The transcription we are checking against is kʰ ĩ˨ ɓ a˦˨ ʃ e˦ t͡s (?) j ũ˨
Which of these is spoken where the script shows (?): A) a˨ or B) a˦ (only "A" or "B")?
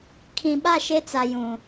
A